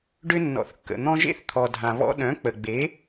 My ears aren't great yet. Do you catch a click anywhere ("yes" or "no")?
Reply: no